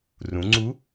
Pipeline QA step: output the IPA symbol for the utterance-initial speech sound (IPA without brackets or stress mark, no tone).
r